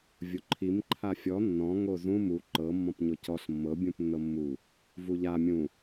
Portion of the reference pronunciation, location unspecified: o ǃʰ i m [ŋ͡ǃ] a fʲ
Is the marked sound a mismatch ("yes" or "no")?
yes